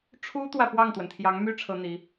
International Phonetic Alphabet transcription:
ʈ͡ʂʰ u˥ t̪ w ä˨ p w ɑ˥˩ ŋ t̪ w ə˩ n t̪ʰ j ɑ˧˥ ŋ m y˥ ʈ͡ʂʰ ɤ˥ n̪ i˧˥

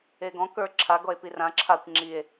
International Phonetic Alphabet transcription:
e ɡ ɔ̃ k ə˞ ǁʰ a ɡ ɔ e̯ p i r ã ǁʰ a kʷ ŋ͡ǁ i e̯

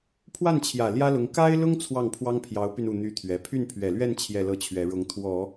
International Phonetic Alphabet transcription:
pʰ w a˥˩ n t͡ɕʰ j ä˨˩ l j ä˥ l ʊ˧˥ ŋ k a˥ ɪ̯ l ʊ˥ ŋ t͡sʰ w ɑ˥˩ ŋ pʰ w ɑ˥ ŋ pʰ j ɑ˧˥ ʊ̯ p y˧ n u˥˩ n̪ y˥ t̪ʰ ɥ ɛ˧˥ pʰ y˥˩ n pʰ ɥ ɛ˨˩ l ɥ ɛ˥˧ n t͡ɕʰ j ɛ˥˧ l ɤ˥˩ t͡ɕʰ ɥ ɛ˧˥ ɻ ʊ˧˥ ŋ t̪ʰ w ɔ˨˩˦

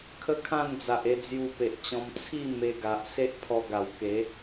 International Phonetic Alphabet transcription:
kʰ ə˦ kʰ ã˥˧ n d͡z a˨ ʔ e˧ d͡z j u˧ p e˨ ʔ t͡ɕ ɔ̃˧ m t͡sʰ i˥˧ m e˧ ɡ a˨ ʔ s e˦ ʔ pʰ ɔ˧ ɡ a˨˩ w k e˨˦

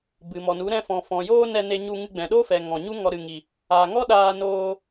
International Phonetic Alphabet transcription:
b ɨ˨ m ɔ˨ n u˨˦ ɾ ɛ̃˧ f ɔ̃˨ f ɔ̃˨ j oː˦ n ɛ˧ n e˧ ɲ u˧ ŋ ɨ˧ ɡ͡b ɛ̃˨ ɗ o˦ f ɛ˨ ŋ ɔ̃˨ ɲ u˦ ŋ ɔ˧ ɾ ɨ˨ ŋ i˨ | a˨ ŋ ɔ˦ ɗ aː˧ n oː˧

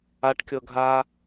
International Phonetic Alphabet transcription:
a ʈ kʲ ɤ ɡʱ a

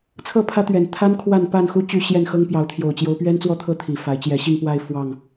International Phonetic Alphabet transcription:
t͡sʰ ɤ˥˨ pʰ ä˦ t̪ ɥ ɛ˨˩ n t̪ʰ a˦ n kʰ w a˥˨ n p a˥˨ n x u˦ t͡ɕ y˥˨ ɕ j ɛ˥˨ n x ɤ˦ ŋ p j ɑ˨˦ ʊ̯ t̪ʰ j o˨˩ ʊ̯ t͡ɕ j o˨˦ ʊ̯ p ɥ ɛ˦ n t͡s w ɔ˥˨ t̪ʰ ɤ˥˨ t̪ʰ i˨˩ f a˨˦ ɪ̯ t͡ɕ j ɛ˨˩ ɕ i˥˨ ŋ p w a˥˨ ɪ̯ f w ɑ˥˨ ŋ

